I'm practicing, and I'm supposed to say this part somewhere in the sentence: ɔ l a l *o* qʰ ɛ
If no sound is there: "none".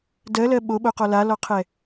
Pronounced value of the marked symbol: ɔ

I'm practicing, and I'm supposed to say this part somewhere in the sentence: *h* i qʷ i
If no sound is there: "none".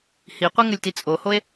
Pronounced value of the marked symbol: h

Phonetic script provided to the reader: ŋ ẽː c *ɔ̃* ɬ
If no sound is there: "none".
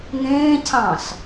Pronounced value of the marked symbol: ɑ̃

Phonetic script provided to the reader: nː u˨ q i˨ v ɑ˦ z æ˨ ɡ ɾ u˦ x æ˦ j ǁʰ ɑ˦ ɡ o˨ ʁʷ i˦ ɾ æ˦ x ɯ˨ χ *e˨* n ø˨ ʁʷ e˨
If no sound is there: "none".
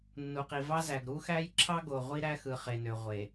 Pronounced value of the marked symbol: e˨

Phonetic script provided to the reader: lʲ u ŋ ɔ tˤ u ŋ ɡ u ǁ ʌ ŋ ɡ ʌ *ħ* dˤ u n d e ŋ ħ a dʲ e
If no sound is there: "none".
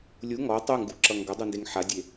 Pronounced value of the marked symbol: none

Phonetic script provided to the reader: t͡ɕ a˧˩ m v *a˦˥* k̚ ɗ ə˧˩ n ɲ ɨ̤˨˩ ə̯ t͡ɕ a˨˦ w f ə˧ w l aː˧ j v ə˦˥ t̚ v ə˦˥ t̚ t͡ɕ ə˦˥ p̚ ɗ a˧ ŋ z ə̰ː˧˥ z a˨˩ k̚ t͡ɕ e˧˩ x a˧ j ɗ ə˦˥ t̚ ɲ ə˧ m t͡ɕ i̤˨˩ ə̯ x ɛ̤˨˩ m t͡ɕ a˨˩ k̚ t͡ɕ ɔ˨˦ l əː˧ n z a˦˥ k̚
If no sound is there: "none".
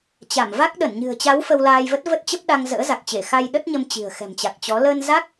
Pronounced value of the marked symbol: a˦˥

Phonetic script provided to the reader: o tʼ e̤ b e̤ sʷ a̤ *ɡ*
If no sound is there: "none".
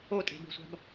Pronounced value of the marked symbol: b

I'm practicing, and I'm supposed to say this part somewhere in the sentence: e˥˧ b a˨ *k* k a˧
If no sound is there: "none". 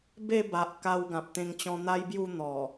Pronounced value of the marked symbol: ʔ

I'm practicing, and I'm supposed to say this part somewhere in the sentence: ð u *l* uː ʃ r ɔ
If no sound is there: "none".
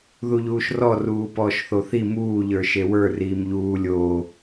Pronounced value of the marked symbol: ʎ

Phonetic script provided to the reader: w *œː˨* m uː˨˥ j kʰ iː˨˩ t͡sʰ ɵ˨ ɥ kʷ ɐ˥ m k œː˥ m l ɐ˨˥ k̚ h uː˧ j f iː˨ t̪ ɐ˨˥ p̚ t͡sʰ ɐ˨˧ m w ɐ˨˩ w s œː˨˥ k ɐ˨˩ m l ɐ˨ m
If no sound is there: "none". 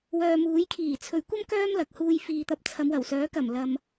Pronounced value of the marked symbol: œː˨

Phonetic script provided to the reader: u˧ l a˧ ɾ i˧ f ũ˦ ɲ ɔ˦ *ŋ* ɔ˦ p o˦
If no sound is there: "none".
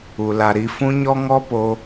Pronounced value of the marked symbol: ŋ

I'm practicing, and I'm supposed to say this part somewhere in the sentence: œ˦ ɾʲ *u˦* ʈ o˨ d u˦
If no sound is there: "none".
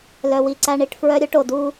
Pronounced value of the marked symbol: o˦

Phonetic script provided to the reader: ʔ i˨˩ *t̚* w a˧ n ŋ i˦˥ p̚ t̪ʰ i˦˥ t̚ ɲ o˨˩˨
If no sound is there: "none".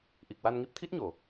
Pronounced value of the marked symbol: k̚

